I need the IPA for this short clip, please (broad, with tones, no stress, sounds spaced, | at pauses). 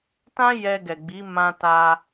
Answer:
t ã˦ j ɛ˧ ɡ ɛ˨ ɡ͡b i˨˦ m ã˧ t a˧